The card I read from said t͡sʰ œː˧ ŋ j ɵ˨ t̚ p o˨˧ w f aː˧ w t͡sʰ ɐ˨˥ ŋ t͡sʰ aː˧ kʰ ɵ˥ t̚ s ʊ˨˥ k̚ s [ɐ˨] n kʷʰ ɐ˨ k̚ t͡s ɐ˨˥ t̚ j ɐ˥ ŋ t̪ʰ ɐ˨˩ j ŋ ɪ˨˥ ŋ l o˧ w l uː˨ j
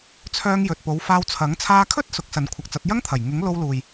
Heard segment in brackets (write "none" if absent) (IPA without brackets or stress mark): ɐ˨